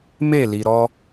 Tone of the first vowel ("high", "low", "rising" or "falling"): falling